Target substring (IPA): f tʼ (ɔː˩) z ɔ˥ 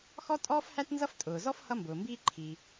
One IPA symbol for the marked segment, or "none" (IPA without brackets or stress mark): ʊː˩